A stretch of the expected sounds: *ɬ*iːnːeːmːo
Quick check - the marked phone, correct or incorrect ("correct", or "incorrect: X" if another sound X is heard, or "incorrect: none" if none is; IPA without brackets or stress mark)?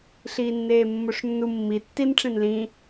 correct